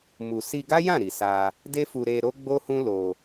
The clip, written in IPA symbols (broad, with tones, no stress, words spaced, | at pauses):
mu˨si˧ɡa˦jã˦˨ ɾi˨sa˧ | de˦fu˧ɾe˧ ɾo˦ɡ͡bo˦ hũ˦ lo˧